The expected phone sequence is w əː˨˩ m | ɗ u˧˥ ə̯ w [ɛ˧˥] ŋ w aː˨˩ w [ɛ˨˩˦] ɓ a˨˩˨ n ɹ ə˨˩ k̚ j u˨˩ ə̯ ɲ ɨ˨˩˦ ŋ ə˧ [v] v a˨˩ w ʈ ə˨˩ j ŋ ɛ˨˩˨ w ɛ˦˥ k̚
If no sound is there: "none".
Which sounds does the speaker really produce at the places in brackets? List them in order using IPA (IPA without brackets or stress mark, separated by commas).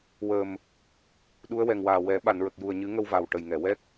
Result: ɛ˨˩, ɛ˨˩˦, w